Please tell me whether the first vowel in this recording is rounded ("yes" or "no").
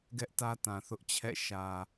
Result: no